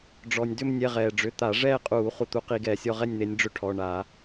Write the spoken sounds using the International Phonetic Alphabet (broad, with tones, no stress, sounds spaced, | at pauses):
ɖ͡ʐ ɔ˩ nʲ d ʏ˥˧ m nʲ ɛ˩˧˩ ʁ ɛː˩ ɖ͡ʐ ʏ˩˧˩ t̪ a˧˩˧ ʐ ɛː˥˧ qʼ uː˧˩˧ χ u˩ t̪ u˨˦ q i˧˩˧ ɡ ɛː˩ sʲ ɔ˥˧ ʁ ɛ˥˧ nʲ n̪ e˨˦ nʲ ɖ͡ʐ ʏ˥˧ ʈʰ ɔ˩˧˩ ɳ a˧˩˧